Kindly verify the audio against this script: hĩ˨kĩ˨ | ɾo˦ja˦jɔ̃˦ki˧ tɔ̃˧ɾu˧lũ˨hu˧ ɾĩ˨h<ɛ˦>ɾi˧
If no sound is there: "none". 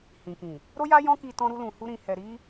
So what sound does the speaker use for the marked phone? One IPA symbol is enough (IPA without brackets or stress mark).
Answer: ɛ˨